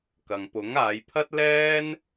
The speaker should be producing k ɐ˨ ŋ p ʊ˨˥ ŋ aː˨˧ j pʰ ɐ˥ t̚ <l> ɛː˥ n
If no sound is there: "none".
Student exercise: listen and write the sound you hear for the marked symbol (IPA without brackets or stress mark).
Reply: l